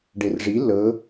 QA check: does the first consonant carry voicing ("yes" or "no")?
yes